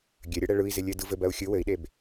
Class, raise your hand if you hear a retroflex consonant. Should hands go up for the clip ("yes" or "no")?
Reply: yes